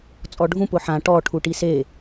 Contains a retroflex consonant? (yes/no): yes